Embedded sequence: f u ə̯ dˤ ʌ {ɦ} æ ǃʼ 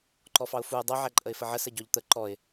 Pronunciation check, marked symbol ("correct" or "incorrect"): incorrect